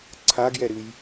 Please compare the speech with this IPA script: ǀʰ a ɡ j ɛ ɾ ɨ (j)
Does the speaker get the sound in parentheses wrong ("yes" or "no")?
no